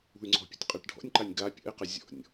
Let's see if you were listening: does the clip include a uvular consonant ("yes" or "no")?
yes